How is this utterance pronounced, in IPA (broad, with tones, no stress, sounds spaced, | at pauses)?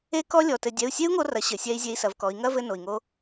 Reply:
e˦˥ k ɔ˦˥ lʲ ɔ˩˧˩ t ɘ˧ dʲ ɛ˩˧˩ u̯ sʲ e˦˥ u̯ ŋ o˧ r ɐ˩˧ ɕ ɘ˩ sʲ ɛ˧ i̯ zʲ e˧ i̯ s ɐ˩˧ v k ɔ˩˧ i̯ ŋ ɐ˦˥ v ɘ˧ n o˩ i̯ ŋ o˧